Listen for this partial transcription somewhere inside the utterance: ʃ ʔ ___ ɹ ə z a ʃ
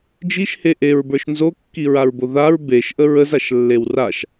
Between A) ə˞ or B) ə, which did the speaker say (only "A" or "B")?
B